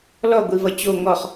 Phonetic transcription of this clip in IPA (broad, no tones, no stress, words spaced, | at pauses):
lɔɡʷivʌ t͡ɕo ŋɔχ